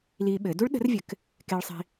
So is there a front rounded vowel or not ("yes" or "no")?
no